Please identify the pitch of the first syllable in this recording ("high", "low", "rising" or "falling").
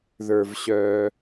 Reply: low